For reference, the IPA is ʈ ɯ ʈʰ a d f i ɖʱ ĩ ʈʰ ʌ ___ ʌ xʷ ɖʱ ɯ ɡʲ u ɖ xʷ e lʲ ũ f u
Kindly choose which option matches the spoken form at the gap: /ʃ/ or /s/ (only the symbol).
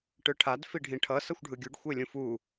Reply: s